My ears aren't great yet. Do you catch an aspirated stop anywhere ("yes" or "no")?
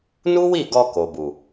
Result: no